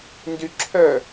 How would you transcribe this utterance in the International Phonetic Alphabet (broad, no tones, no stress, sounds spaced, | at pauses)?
n d y ǁʰ œ